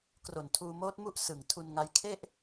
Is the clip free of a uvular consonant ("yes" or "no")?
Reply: yes